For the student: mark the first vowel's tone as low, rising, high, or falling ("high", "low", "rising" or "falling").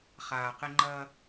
low